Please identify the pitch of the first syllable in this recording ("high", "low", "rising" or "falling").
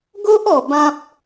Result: high